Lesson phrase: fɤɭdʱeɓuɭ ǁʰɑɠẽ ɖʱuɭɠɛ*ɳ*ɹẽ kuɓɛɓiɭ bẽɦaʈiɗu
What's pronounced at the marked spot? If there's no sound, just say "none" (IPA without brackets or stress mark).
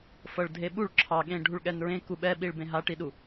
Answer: n